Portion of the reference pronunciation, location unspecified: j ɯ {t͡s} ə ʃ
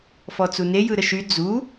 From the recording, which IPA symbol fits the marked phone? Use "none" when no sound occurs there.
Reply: ɾ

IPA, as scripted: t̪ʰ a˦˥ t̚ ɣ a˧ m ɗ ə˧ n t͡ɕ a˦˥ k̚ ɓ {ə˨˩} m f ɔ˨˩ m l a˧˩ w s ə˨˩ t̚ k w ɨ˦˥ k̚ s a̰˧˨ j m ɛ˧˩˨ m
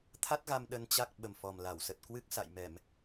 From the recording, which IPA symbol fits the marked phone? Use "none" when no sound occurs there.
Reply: ə˨˩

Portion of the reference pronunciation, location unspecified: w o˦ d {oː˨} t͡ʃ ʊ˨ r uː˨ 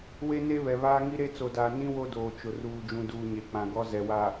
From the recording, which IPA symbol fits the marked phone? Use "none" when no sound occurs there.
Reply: oː˨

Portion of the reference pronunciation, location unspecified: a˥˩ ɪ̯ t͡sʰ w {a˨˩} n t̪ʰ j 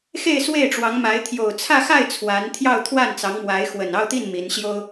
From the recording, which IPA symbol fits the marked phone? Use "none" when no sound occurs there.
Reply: a˧˥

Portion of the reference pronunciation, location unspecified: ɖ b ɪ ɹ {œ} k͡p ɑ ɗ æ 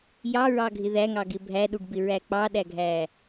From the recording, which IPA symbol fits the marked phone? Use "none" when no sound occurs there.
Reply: æ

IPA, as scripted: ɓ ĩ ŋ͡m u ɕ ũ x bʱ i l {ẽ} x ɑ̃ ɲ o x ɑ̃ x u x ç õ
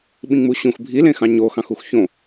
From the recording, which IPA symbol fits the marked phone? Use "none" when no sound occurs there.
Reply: ẽ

